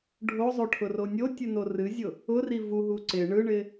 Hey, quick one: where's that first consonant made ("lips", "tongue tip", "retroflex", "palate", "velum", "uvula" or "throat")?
retroflex